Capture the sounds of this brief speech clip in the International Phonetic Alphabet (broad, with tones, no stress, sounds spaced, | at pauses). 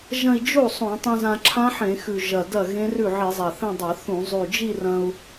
ʒ ɐ̃˥˧ i̯ d͡ʒ o˥˩ sˤ õ˧˩˧ tˤ ĩ˧ z ã˧ ǁʰ ã˦˥ ħ ẽ˧˩˧ x ʉ˨˩ ʒ ɐ˨˩ d ɐ˥˩ ɣ ẽ˦˥ r ʉ˥˩ ʕ i˧˩˧ zˤ a˨˩ θ ẽ˥˧ dˤ ɐ˧˩˧ θ ũ˧˩˧ zˤ ʉ˨˩ d͡ʒ i˥˧ r ɐ̃˧ u̯